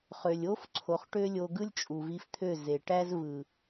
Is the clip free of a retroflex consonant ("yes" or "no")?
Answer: no